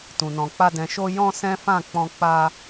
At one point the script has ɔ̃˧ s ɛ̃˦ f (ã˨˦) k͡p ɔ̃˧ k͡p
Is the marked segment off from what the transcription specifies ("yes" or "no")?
yes